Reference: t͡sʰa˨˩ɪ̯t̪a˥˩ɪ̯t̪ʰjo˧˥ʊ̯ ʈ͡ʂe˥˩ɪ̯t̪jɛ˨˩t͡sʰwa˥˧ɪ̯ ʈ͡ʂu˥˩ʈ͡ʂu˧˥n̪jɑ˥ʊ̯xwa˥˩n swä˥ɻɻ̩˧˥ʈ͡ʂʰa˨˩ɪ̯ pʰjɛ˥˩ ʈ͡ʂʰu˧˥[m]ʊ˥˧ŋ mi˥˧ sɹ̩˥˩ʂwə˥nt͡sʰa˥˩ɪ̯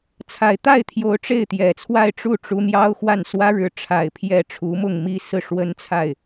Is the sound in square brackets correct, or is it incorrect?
correct